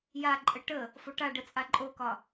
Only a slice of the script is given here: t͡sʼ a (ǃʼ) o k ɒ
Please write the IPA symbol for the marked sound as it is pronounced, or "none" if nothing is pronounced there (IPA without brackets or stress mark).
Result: ǃʼ